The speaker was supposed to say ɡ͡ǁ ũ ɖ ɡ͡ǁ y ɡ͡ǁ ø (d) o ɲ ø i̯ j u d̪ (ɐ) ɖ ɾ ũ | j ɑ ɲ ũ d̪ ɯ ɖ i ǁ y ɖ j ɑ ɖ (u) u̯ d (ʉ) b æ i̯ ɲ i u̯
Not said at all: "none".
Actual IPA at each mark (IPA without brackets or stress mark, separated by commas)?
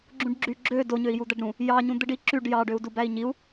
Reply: d, æ, ø, u